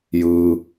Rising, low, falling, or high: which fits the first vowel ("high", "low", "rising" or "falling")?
low